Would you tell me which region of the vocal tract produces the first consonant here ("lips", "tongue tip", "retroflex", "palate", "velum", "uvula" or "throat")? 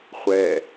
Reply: uvula